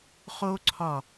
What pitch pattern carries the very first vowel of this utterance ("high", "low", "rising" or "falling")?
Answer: high